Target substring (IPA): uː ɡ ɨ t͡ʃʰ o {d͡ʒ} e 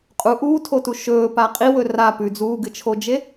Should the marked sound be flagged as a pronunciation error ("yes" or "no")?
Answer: no